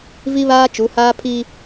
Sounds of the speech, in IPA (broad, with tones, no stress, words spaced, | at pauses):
vi˦ βaː˦t͡ʃu˨˦haː˦ pʰi˦